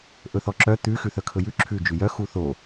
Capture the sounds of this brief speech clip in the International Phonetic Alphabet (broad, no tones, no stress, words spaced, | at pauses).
ʔɵθɔǁœ t̪ʉ xʉθœkʰɵjʉ ǁʰʉ d͡ʒʉjœ xuθo